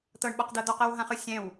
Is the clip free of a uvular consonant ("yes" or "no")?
no